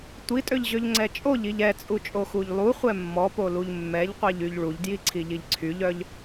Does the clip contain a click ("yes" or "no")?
yes